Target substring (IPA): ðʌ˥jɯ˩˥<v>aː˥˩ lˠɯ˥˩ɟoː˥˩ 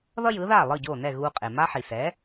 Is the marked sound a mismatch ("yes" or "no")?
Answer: yes